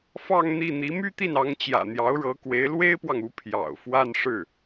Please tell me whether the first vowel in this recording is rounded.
no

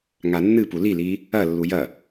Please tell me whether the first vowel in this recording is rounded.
no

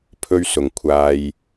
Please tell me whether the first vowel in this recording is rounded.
yes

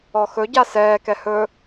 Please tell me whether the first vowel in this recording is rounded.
yes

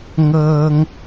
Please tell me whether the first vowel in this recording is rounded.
no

